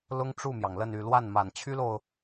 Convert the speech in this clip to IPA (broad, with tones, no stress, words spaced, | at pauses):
lʊ˥ŋʈ͡ʂu˥˩mjɑ˩ŋlə˥˧n y˥˧ lwa˥˩nma˨˩nt͡ɕʰy˥lo˨ʊ̯